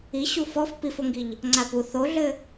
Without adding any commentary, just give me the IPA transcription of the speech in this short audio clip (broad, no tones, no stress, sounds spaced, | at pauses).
i ɕ u f ɔ f p i f o ŋ ɡ i ʎ | ŋ͡ǀ a p u θ o ɮ ɘ